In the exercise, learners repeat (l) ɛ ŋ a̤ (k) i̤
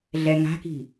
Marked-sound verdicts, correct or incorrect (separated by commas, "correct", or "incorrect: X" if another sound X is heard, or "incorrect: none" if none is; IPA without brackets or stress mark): incorrect: ɮ, correct